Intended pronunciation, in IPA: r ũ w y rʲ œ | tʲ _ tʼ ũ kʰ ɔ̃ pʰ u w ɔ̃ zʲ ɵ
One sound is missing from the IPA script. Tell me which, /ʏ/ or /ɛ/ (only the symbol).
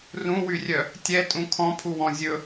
ɛ